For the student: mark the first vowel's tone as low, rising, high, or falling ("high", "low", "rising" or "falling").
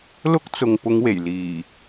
high